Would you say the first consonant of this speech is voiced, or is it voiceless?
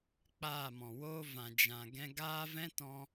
voiceless